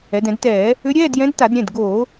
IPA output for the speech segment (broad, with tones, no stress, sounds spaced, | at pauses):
ɛ˩˧ d ɛ̃˧˩˧ d t ɛː˧˩˧ | ʏ˧˥ ɾʲ ɛː˧˥˧ d j ɛ̃˧˥ d t a˧˩˧ d ɾʲ ɛ̃˩˧˩ d ɡ oː˧˩˧